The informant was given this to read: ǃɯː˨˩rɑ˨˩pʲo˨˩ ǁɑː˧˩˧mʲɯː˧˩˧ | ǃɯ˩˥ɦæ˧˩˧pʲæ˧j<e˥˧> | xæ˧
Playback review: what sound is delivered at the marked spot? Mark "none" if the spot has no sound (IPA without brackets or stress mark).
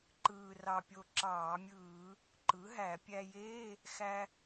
e˧˥˧